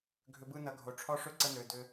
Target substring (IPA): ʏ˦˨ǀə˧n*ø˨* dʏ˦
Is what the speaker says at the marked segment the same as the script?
yes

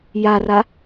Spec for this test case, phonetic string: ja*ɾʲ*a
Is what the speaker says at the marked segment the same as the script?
no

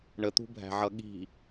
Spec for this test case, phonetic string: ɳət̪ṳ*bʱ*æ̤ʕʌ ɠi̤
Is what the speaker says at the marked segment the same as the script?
yes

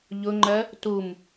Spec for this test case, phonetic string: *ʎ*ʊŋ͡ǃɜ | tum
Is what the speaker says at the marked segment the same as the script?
yes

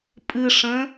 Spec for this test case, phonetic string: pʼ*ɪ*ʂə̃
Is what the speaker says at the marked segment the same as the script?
no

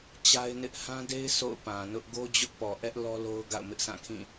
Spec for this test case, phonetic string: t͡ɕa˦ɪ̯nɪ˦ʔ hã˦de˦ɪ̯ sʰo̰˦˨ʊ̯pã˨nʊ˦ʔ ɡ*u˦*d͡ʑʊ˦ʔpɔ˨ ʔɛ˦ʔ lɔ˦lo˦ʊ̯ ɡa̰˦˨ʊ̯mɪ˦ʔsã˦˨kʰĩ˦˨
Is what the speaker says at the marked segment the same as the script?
no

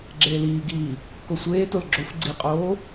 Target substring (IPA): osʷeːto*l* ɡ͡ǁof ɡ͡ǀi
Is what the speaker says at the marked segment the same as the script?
yes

